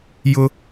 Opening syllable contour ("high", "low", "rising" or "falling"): high